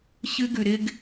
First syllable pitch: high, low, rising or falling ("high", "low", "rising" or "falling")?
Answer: high